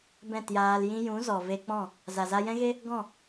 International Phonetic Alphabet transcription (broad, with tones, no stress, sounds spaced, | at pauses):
b ɛ̃˦˨ t j aː˧ l j ĩ˦ j ũ˨˦ z ɔ˨ v e˧ k͡p ɔ̃˦˨ | z a˨ z a˧ j ɛ̃˦ ɣ e˦ | ɡ ɔ̃˦˨